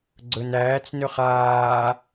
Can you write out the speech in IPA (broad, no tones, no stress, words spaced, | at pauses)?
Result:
ɡ͡ǀɵnæːt͡snɵχ aː